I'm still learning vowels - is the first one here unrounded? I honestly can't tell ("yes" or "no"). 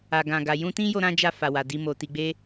yes